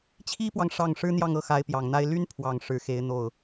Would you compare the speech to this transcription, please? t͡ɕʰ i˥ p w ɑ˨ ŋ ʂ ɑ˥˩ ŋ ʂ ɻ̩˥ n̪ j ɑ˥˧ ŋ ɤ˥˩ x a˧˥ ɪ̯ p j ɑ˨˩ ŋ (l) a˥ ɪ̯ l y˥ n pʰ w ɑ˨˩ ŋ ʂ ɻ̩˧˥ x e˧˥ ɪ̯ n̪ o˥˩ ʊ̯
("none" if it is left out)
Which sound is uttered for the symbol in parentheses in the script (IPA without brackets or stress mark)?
n̪